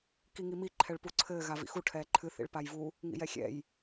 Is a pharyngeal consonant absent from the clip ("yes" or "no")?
yes